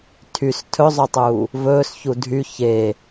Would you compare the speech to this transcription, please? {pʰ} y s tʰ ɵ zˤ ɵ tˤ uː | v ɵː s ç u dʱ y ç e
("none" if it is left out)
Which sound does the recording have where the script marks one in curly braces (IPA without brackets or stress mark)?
tʰ